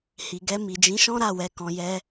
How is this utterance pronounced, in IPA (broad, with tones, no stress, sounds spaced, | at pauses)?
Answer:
h i˨ ɡ ɛ˧ m i˨ d͡ʒ ĩ˨˦ ʃ ɔ̃˦ ɾ a˦˨ w ɛ˨˦ k ɔ̃˧ j ɛ˦